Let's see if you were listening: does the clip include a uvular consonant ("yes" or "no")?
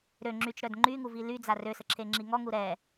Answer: no